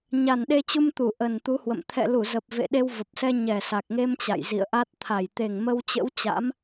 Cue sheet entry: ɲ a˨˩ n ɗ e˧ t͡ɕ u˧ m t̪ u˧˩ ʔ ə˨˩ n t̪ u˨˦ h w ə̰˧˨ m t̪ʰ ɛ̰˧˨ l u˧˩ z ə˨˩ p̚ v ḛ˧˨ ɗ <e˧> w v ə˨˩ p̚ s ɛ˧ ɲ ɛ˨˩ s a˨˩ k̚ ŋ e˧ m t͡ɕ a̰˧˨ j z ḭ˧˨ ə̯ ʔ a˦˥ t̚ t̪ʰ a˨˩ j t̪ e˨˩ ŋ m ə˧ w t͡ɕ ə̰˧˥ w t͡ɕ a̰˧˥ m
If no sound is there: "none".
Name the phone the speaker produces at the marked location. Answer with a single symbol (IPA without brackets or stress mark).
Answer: e˧